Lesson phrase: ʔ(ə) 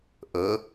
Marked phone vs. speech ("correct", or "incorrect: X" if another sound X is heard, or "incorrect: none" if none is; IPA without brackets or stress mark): correct